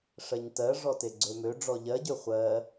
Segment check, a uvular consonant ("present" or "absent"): present